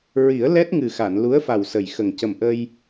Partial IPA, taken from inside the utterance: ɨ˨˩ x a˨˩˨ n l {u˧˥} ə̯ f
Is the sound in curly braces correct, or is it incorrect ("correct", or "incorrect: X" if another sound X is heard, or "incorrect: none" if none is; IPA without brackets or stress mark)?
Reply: correct